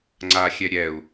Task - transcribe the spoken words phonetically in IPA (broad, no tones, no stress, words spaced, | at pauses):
ŋ͡ǀa xʲɛɾʲɛu̯